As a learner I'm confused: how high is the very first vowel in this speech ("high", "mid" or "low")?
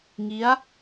high